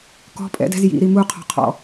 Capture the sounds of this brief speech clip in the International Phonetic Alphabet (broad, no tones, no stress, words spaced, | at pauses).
kɔ̤ pʼɛ̰dɛ̤z jḭɾi muqʰɔ̤qʰɔ̰